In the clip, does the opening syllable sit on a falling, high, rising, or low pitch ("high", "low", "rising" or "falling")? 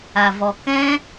low